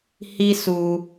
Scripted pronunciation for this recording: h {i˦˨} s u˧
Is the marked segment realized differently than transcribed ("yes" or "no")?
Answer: yes